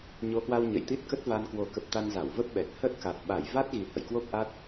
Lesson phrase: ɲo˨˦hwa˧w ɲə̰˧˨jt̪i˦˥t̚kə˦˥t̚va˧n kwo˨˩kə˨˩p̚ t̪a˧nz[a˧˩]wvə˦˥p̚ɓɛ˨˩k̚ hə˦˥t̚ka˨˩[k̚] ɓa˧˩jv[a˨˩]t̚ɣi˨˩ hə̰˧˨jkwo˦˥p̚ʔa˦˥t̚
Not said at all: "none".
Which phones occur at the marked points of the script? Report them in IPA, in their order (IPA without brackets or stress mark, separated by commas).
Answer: a˧˩, t̚, a˦˥